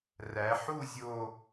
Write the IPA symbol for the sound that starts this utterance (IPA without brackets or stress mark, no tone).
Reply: r